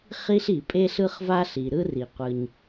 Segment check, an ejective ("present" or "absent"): present